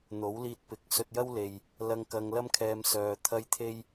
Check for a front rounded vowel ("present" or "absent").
present